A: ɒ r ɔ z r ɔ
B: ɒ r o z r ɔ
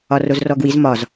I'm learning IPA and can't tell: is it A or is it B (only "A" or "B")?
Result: B